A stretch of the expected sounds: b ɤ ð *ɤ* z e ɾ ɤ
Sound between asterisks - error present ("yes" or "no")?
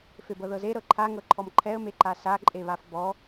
no